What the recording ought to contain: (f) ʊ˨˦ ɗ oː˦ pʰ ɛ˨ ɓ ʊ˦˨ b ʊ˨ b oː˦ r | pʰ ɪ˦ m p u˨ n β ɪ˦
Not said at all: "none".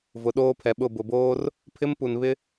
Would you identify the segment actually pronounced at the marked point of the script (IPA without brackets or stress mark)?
v